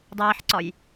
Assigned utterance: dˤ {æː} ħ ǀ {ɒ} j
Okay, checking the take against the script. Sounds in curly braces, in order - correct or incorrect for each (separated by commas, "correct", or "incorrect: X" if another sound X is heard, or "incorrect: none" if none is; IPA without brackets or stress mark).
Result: correct, correct